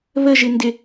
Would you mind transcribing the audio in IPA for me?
β ə ʒ ɪ n d ɪ

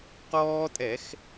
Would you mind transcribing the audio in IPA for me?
q ɔː˦ tʼ ɛ˧˩˧ x

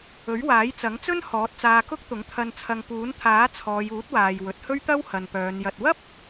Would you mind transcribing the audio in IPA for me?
ɵ˨˥ ɥ w aː˨˥ j t͡s ɐ˨˥ ŋ t͡s ɵ˥ n h ɔː˨˥ t̚ t͡s aː˧ k ʊ˥ k̚ t̪ ʊ˨˥ ŋ t̪ʰ ɐ˧ n t͡sʰ ɐ˧ ŋ p uː˨˥ n t̪ʰ aː˨˥ t͡sʰ ɔː˨˧ j uː˨˥ t̚ w aː˨ j w ɵ˨˥ t̚ h ɵ˥ ɥ t̪ ɐ˥ w h ɐ˨ n p œː˨˧ n j ɐ˧ t̚ w ɐ˥ p̚

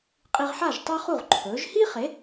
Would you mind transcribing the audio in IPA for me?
qʼ i˧ ʁ ħ a˥˩ ʒ tˤ a˥ χ u˥˩ ʁ ǃʰ ɵː˩˥ ʒ h i˥ χ e˩˥

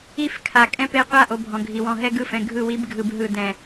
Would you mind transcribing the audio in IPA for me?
i˦˨ f kʰ a˨ kʼ ɛ̃˦ p e˦˨ qʷ a˦˨ ʔ o˨ bʱ ɔ̃˨ ɡʱ i˨ w ɔ̃˦˨ ɦ ɛ˦ ɡ ɯ˦˨ f ɛ̃˨ ɡʱ ɯ˦˨ w i˦ b ɡʱ ɯ˨ b ɦ ɯ˨ d ɛ̃˨

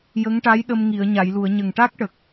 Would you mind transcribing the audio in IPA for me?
j ə˧˥ ŋ ʈ a˧˥ j ɗ ə˧ m ŋ i˨˩˨ ə̯ ɲ a˨˩˨ j l u˨˩˨ ə̯ ɲ ə˨˩ ŋ ʈ a˦˥ k̚ ʈ ə˨˩ k̚

